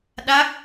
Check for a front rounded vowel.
absent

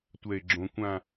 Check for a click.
present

